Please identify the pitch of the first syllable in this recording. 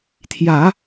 low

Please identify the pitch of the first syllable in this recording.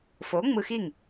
rising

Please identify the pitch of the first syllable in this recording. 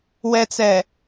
low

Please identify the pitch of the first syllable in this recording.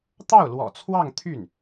falling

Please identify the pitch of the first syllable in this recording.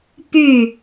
falling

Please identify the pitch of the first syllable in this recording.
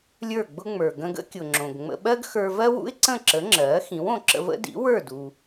falling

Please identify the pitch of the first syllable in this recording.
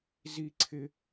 high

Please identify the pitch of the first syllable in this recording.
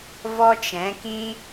high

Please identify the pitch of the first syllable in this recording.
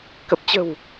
low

